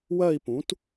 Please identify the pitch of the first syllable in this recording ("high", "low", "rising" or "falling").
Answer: falling